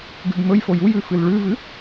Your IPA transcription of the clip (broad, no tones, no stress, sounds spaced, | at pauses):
ɡ ʉ b m ɵ j f o j u j ʉ f ɨ l ɭ ʉ v ɨ